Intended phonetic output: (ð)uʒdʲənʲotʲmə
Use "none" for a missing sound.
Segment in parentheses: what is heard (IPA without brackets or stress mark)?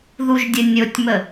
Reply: ð